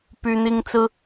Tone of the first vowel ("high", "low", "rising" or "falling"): high